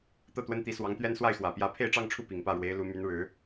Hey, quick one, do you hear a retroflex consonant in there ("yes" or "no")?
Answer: yes